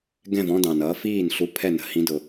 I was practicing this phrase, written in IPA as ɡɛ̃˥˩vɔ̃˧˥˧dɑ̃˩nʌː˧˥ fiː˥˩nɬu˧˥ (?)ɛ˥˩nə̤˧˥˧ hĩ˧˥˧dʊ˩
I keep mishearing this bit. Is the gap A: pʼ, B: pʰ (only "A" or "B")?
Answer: B